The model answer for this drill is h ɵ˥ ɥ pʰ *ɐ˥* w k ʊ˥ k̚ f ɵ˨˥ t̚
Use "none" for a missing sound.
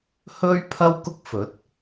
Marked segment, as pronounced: ɐ˥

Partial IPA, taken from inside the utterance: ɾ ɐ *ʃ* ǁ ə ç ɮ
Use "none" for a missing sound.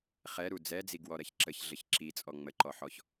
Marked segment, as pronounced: ç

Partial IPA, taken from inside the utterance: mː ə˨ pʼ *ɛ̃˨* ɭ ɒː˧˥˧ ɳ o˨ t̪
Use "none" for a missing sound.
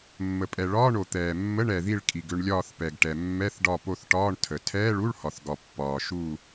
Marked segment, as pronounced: ɛ˨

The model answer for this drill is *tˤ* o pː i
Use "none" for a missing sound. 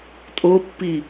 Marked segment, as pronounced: tʼ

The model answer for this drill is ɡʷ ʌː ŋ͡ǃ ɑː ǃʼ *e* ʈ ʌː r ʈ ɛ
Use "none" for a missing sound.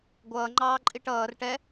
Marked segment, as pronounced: i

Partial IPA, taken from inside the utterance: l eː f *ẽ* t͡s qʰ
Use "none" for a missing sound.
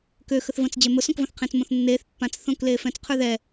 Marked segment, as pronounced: ɛ̃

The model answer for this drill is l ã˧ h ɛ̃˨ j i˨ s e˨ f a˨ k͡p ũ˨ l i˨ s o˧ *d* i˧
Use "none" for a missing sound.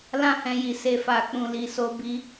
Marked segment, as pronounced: b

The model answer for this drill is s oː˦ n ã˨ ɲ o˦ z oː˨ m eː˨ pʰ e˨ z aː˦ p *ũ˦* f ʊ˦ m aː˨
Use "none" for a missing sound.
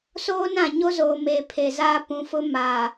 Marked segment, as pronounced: ũ˨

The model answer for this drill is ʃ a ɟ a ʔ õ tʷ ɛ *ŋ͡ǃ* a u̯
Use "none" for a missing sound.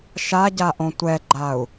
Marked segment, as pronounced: ɡ͡ǃ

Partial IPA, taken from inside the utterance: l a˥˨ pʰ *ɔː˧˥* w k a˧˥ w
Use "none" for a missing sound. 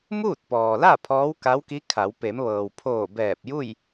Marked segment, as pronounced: ɔː˧˥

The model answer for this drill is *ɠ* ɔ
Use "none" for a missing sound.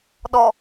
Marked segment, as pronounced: ɗ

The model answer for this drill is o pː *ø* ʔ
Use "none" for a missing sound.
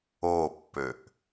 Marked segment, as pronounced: ø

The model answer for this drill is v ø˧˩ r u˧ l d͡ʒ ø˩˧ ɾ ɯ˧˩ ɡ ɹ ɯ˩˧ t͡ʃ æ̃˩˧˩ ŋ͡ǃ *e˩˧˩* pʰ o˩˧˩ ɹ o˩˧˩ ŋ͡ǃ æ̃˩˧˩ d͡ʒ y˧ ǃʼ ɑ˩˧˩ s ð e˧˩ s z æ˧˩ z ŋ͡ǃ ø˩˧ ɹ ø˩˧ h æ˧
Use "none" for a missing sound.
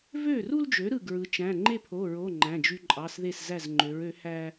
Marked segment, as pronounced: e˥˨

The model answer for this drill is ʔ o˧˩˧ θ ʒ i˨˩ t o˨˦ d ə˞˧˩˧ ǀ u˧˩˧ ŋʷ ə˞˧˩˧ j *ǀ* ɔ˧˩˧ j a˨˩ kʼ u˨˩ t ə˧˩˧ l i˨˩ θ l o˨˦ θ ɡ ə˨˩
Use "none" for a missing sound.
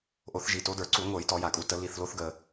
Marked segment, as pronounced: t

